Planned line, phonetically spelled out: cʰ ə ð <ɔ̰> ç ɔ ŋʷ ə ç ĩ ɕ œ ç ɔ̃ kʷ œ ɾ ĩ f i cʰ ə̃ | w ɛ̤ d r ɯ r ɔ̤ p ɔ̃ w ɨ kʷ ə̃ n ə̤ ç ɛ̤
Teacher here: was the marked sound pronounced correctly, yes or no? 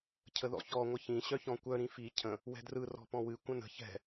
yes